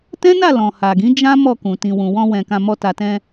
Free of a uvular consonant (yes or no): yes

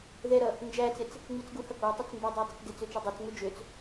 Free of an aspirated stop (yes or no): yes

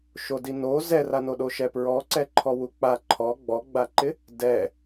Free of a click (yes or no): no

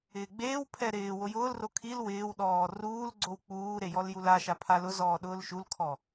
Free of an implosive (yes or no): no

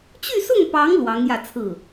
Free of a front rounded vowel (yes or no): no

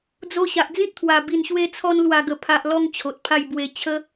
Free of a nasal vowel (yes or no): no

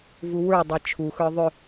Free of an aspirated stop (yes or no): no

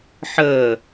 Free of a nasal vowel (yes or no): yes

